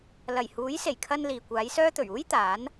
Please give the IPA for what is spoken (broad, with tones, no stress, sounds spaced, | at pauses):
l ɐ˨˩ j h uː˨˥ j s e˨˩ j kʰ ɐ˧ n l iː˨ kʷ aː˨˥ j s œː˥ t̪ ɵ˨˩ ɥ uː˥ j t̪ aː˨˥ n